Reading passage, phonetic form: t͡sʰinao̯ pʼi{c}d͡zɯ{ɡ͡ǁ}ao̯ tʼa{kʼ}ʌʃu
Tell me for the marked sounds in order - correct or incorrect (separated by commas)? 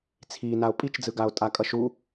incorrect, incorrect, correct